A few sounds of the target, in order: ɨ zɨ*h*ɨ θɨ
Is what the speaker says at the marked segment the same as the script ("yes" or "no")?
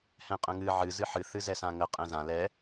no